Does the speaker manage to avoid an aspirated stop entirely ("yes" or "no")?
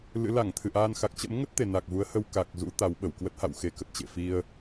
no